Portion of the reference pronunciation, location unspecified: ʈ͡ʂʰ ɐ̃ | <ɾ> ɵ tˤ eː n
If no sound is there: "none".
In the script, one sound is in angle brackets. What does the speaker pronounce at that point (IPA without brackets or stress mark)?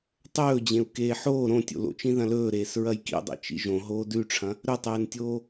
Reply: ɾ